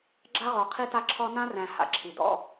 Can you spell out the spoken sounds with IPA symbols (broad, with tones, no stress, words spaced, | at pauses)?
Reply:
ɡ͡ǁa˦ʁɔ˨ qʰi˦ta˦ǁʰɔ˦ nã˦ræ̃˨ ha̰˨ǁʰi˨ dɔ̰˦